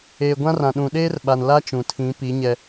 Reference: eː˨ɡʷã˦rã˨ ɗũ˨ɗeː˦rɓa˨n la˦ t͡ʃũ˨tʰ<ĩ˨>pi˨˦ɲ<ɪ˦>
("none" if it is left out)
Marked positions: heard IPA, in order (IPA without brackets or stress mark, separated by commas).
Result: ĩ˨˦, ɛ˦